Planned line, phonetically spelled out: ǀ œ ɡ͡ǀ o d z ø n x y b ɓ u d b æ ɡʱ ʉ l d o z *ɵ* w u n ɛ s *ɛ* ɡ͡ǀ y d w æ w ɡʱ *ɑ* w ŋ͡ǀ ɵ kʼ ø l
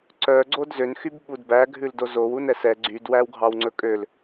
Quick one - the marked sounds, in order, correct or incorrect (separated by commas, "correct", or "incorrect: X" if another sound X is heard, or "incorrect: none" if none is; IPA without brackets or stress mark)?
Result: incorrect: o, correct, correct